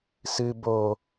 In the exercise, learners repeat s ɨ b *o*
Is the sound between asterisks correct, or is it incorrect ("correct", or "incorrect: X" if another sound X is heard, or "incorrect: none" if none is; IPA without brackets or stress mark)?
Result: correct